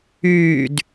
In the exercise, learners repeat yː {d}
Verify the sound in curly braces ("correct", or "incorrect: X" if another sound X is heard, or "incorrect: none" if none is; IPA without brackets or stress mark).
correct